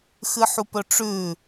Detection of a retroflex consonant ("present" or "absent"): present